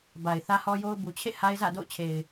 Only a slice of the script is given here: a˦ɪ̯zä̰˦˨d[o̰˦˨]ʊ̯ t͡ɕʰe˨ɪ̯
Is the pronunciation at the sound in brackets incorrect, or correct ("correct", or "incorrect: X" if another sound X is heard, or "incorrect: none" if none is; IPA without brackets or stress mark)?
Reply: correct